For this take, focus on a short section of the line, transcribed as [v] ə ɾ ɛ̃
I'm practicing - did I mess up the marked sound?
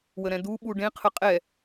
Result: yes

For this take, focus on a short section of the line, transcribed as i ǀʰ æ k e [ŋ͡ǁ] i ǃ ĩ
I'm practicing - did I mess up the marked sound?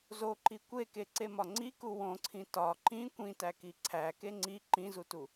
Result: yes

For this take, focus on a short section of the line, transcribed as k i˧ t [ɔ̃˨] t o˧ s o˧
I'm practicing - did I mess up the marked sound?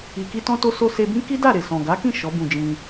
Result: yes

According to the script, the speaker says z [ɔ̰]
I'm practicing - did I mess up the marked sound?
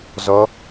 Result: yes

